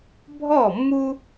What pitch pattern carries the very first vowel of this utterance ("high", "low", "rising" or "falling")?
falling